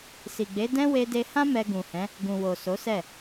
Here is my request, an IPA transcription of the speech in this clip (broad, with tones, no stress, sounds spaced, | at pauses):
s i˨ ɡ͡b e˨˦ d ɛ̃˦ w e˧ d e˧ h ã˦ m ɛ˧ ɡ ũ˨ h ɛ̃˨˦ | ɡ ũ˨ w o˨ s o˨˦ s ɛ˦˨